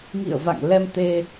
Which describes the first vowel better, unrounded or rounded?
unrounded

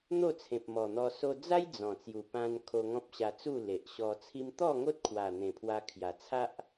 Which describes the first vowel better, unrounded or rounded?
rounded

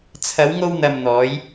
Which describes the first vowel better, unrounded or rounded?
unrounded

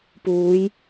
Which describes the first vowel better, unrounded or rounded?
rounded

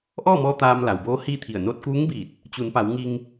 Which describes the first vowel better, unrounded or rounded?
rounded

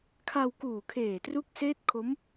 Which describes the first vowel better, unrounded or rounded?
unrounded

